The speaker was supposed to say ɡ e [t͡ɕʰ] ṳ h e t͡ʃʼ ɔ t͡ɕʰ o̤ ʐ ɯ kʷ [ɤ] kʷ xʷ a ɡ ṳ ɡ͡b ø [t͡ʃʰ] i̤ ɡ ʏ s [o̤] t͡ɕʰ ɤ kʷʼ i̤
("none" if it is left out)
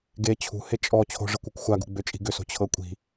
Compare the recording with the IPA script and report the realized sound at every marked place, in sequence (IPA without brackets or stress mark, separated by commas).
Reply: t͡ɕʰ, ɯ, t͡ʃʼ, o̤